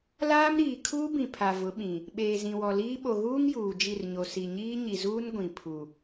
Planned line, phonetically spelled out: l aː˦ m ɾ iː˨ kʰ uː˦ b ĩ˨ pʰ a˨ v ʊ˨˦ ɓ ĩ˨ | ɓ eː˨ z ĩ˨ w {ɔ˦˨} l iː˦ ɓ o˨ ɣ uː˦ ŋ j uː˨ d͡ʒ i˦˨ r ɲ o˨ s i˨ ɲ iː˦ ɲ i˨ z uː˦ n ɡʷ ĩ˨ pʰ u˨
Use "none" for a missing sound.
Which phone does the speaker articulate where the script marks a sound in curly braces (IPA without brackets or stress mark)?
ɔ˨